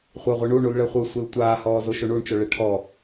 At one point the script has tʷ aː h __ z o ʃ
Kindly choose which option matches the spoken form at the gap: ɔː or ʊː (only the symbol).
ɔː